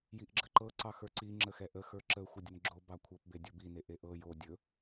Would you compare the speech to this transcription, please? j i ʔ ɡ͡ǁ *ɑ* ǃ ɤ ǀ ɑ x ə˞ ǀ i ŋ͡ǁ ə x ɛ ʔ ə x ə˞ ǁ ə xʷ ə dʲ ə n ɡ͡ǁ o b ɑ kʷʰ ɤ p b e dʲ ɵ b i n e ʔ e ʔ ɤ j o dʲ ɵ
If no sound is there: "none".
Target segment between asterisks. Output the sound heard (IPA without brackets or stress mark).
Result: ə